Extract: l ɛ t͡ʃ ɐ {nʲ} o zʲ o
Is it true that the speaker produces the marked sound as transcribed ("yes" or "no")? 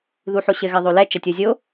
no